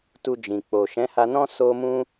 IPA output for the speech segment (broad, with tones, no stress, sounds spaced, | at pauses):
t u˧ d͡ʒ ĩ˨ k͡p o˨ ʃ ɛ̃˨˦ h a˧ n ɔ̃˦ s o˦ m ũ˦